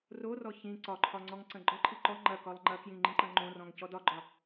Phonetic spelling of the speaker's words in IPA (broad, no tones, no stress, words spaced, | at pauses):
rorɔ çĩ ǀɒǃʰɒ ŋ͡ǀɔŋǀɐ̃ɡ͡ǃɒǃʰi ǃɔ ŋ͡ǃɐ kɒlˠŋ͡ǃɐkjĩ ŋ͡ǃĩǃɐ̃ŋ͡ǃõrɔ̃ŋ cɔdɒɡ͡ǃɒ